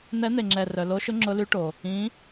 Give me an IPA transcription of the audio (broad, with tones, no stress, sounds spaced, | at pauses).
n̪ ɛ˧˥ n̪ e˨ ŋ͡ǁ ɛ˨ r œ˨ l o˧˥ ʃ ʊ˧˥ ŋ͡ǁ ʊ˧˥ l y˧˥ ʈ o˨ | ĩ˧˥